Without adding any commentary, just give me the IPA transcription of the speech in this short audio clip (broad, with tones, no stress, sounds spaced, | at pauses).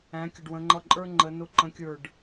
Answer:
æ̃˩˧ kʲ ə˩ ɖ w ə̃˩˧ ŋ͡ǃ ʌ˧˩ ǃʼ ə˞˦ ŋ͡ǃ ə˩˧ n ʊ˧˩ ǃ ə̃˩˥ kʲ ə˞˧˩ ɖ